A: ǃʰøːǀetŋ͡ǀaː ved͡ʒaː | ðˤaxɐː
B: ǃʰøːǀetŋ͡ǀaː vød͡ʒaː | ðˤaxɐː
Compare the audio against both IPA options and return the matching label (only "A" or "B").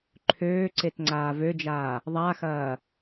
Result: B